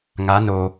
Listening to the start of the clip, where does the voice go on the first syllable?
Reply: rising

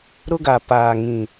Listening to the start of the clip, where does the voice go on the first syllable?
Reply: high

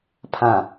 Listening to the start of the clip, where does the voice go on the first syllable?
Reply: low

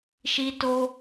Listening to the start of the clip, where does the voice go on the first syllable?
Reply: high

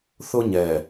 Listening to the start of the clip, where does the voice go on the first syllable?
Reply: high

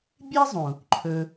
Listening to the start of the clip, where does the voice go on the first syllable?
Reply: high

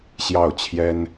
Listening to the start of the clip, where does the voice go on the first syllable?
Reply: falling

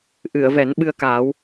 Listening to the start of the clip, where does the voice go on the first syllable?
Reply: low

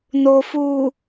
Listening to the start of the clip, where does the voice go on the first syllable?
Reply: low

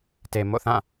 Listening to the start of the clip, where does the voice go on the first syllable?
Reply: low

